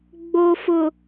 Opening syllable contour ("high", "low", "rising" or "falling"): low